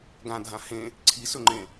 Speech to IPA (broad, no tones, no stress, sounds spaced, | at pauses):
ɡ ã dʱ ã h ẽ | ǀʰ i s ɵ ŋ͡ǃ ẽ